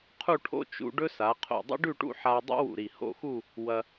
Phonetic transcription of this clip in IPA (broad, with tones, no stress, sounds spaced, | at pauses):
qʰ u˥˧ ʈʰ o̰˥ t͡ʃ ṵ˧ ɖ ɵ˥ s a˩˧ qʰ o̰˧˩ dˤ ḭ˥ ɖ ʉ˥˧ ʈ ṵ˥˧ ħ a˧ dˤ ṵ˥ w ṵ˧˩ ɾ i˧˩ h o̰˥˧ x u˥˧ | w ɐ˧